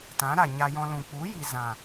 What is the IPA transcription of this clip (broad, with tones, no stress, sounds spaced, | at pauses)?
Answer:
t ã˨˦ ɾ a˨ ɲ a˧ j ɔ̃˧ l ũ˨ k͡p u˨˦ j i˨ z ã˨